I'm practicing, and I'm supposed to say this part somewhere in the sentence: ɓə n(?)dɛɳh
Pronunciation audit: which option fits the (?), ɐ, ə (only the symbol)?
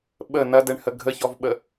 ɐ